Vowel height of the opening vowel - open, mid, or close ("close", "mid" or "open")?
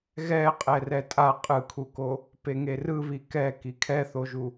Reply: mid